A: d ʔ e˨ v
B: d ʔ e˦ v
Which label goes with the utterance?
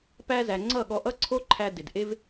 B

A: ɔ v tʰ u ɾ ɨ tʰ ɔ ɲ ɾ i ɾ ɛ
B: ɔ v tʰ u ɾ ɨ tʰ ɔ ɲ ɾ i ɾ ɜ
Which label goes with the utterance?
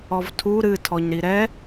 A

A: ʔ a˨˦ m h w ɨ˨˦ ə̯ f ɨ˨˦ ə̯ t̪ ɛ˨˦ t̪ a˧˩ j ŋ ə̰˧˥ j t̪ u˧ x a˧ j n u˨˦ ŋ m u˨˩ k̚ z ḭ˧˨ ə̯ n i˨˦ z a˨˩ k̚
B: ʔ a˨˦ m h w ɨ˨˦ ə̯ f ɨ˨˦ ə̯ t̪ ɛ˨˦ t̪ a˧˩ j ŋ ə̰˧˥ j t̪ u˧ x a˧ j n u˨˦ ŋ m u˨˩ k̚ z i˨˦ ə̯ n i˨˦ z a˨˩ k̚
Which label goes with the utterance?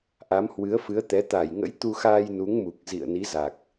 A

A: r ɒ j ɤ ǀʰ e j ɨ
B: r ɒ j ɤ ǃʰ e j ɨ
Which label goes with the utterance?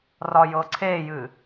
A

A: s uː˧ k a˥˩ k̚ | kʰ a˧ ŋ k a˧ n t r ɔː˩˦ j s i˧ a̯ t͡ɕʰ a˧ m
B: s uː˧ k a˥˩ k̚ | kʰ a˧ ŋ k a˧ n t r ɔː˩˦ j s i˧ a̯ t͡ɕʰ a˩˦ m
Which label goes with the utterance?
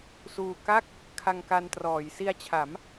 B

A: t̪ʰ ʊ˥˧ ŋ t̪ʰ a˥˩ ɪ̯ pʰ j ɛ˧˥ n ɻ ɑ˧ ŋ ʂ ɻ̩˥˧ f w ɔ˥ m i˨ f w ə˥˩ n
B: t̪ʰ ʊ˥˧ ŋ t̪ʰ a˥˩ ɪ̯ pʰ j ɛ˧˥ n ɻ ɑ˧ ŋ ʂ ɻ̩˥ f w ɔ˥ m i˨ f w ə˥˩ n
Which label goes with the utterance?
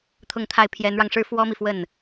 B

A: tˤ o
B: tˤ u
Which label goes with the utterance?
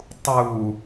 B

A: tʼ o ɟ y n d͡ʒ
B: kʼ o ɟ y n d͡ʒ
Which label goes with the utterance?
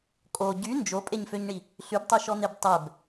B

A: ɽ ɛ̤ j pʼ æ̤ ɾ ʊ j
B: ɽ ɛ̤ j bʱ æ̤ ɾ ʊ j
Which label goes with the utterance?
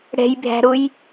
B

